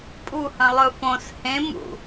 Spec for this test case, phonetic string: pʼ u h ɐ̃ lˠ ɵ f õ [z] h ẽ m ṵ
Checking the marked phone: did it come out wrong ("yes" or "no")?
yes